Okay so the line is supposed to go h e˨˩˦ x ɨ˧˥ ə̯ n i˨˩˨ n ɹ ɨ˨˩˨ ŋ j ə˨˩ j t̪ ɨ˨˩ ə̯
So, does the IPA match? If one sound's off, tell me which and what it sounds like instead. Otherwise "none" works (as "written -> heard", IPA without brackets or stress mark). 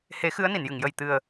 ɹ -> j